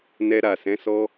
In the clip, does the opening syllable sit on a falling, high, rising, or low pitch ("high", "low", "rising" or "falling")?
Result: high